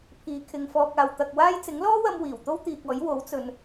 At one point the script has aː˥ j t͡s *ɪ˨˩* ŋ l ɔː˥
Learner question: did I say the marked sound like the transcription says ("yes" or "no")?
no